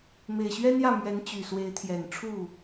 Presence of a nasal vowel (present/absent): absent